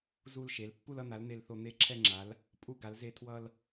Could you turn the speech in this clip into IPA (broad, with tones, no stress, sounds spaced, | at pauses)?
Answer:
z u˦ l ʃ e˨˦ l pː u˦ l ʌ˦ n̪ a˨˦ l n̪ e˦ l θ o˦ n̪ e˦ ǁʰ ɛ˦ ŋ͡ǁ a˨˦ l | pʼ u˦ ɡ a˨˦ l z e˦ tʰ w ʌ˦ l